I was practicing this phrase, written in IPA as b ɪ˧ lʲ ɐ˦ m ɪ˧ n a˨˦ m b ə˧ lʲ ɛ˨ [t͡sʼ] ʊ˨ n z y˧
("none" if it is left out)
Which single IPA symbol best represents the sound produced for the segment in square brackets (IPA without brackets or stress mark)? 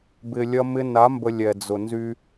d͡z